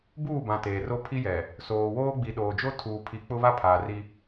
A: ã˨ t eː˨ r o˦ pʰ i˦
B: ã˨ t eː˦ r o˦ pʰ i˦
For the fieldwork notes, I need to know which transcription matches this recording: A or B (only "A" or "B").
A